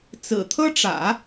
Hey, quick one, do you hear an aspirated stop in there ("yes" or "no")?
yes